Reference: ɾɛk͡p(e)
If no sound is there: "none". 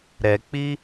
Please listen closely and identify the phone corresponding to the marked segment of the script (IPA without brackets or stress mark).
i